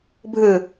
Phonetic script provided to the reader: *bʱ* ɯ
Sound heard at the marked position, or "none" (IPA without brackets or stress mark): bʱ